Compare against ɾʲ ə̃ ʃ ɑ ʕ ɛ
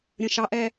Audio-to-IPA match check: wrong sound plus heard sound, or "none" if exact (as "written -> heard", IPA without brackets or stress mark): ʕ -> ʔ